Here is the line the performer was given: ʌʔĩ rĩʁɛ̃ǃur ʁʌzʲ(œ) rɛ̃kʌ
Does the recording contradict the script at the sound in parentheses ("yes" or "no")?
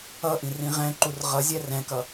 yes